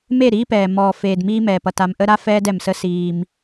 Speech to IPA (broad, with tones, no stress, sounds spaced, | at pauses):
m e˦˨ ɾ iː˦ p ɛː˨ m ɔː˨ f eː˨ d m iː˦ m ɛː˨ p ʌ˨ t a˨ m ʔ ə˦ ɾ a˦ f ɛː˦ d ɛ˨ m s ə˦ s iː˦ m